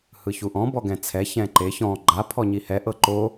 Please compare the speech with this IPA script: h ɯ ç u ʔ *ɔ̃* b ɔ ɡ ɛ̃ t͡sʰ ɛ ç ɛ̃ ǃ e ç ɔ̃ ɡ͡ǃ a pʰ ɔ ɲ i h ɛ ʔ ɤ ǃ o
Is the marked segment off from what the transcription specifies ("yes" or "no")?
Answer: no